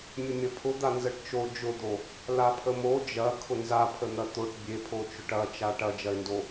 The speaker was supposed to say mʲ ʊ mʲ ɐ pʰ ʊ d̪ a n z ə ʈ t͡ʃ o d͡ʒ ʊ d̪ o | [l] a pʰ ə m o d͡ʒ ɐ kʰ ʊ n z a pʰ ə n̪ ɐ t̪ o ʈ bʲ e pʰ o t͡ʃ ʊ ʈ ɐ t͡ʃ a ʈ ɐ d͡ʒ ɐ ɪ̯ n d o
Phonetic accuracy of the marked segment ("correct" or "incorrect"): correct